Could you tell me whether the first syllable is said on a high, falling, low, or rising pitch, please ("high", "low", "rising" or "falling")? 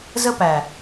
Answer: high